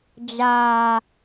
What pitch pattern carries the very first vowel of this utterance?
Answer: low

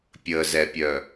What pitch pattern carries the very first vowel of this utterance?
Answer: low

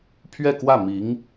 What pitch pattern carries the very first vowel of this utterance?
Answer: falling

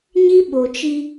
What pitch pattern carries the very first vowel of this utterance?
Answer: high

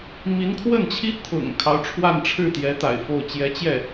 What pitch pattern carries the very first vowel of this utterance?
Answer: rising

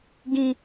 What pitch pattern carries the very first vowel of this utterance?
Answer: high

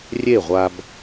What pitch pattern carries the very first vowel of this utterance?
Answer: falling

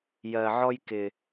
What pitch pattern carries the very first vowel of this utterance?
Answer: low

